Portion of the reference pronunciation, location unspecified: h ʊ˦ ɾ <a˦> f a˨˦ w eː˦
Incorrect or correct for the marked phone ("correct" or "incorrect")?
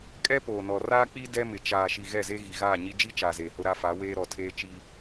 correct